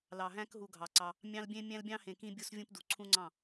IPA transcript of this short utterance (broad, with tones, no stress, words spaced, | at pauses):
lɑ˨ɦæ̃˦k ɦu˨ ɡʱɑ˨ǀɑ˦ | mʲɑ̃˦lbʲẽ˦ mʲæ̃˦lbʲɑ̃˦hẽ˨kĩ˦ bʲu˦svʲũ˦pdu˨ ǀʰũ˦ŋ͡ǀɑ̃˦˨